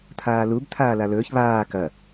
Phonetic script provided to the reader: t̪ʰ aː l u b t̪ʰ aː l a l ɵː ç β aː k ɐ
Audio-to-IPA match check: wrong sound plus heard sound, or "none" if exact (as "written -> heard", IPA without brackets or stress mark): none